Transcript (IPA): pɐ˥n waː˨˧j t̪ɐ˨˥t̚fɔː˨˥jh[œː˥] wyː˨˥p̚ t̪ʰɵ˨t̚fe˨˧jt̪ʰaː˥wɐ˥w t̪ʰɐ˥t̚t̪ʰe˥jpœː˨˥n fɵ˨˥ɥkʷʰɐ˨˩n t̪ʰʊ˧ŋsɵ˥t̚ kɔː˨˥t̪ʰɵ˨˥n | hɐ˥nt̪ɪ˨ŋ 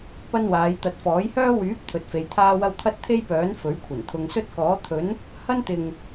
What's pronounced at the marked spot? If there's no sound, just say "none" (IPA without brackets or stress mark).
œː˥